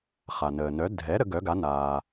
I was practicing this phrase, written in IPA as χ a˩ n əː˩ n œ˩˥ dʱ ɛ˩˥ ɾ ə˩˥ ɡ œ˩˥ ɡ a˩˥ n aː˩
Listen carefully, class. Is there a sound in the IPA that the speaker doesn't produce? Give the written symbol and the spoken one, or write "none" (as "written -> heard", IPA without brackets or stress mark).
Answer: none